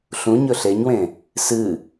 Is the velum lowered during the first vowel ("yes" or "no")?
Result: yes